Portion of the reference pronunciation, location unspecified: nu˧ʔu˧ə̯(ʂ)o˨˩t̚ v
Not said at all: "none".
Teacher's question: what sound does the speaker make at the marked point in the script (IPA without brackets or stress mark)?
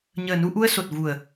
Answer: s